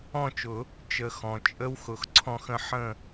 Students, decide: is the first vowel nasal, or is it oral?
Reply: nasal